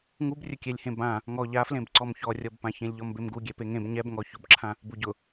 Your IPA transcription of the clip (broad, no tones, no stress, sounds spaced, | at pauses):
ŋ u b rʲ ʊ kʲ ɛ lʲ h ẽ b ã | ŋ ɔ ʎ a f l ẽ b ǀ ɔ m ç ɔ rʲ ɔ b p ã ç ẽ lʲ ʎ ɔ m b e m ɡ u ɡʲ ɛ p e ŋ ẽ b ɲ ɛ b ŋ ɔ ç ʊ b ǁʰ ã | b u ɟ ʊ